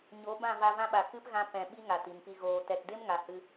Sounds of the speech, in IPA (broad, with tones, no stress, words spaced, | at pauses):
ɲo˨˦ bã˦˨va˧ vã˧ɓa˨ kɨ˦pɣã˧ pɛ̃˨ɓi˧ ŋa˨ti˨m pi˨ɣoː˨ tɛ˨tde˦mŋa˨ hɨ˧